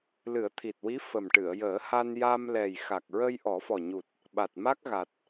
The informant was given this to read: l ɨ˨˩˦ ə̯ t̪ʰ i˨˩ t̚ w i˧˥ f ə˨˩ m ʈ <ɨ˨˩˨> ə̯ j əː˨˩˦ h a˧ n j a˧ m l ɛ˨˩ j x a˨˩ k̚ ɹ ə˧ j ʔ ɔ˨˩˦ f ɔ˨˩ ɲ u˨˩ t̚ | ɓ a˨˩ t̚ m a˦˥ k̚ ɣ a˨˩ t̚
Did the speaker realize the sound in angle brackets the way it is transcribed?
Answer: yes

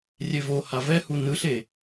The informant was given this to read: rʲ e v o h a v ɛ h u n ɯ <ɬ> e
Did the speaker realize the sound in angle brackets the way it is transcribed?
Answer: yes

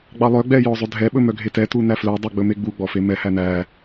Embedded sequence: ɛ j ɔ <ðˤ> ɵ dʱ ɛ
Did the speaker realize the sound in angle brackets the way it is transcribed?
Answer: no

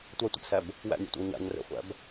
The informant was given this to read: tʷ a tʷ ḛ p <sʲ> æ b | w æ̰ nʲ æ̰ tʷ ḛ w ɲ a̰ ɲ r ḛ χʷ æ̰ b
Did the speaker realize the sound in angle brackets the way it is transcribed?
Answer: no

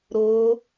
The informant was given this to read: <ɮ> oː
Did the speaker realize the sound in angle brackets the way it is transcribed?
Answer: no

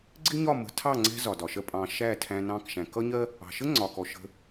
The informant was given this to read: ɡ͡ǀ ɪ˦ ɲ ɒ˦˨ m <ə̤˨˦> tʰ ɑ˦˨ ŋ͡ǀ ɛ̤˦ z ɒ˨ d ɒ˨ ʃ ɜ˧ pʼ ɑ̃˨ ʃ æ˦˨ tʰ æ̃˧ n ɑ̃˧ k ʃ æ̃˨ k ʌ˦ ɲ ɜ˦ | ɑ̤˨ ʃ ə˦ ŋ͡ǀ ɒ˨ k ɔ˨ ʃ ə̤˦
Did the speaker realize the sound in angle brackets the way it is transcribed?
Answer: yes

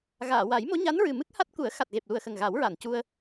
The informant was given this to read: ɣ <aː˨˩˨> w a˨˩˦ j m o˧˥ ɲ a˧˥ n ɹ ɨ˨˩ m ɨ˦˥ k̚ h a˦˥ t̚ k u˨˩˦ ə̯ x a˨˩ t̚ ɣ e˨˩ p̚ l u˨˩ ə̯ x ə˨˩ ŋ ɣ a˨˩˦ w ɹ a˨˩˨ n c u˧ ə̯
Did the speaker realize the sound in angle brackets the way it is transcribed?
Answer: yes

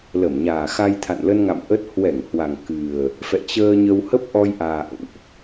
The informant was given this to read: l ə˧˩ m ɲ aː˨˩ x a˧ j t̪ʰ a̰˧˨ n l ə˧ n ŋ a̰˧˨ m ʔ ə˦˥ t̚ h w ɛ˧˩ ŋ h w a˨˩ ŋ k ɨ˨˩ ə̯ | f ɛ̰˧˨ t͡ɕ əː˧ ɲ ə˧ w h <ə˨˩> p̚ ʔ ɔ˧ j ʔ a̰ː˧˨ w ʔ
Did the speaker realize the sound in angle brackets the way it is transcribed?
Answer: no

